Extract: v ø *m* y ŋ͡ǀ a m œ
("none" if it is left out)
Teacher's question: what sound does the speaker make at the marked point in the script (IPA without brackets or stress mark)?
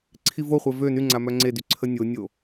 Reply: n